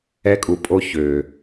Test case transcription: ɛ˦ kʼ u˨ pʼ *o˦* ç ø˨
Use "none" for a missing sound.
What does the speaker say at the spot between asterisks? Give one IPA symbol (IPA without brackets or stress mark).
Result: o˦